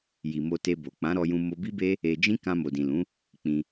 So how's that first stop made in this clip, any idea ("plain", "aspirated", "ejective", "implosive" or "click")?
plain